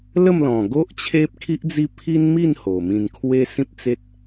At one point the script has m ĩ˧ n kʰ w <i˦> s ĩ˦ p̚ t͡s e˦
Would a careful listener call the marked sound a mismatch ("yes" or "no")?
yes